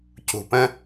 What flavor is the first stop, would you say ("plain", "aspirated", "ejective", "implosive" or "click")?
plain